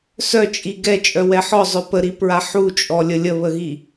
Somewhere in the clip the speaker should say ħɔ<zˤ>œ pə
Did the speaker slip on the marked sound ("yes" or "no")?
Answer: no